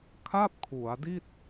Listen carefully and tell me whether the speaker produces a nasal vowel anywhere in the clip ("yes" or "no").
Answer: no